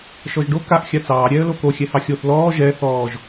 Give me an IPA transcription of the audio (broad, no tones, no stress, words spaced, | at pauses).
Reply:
ʃɔʒɖo kaʔ xʲat͡sɑː ɾʲɛːə̯loko xʲɛhɑxʲoθ lɔː ʒɛ θɔːʒ